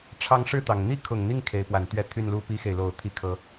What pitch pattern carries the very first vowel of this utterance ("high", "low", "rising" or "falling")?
rising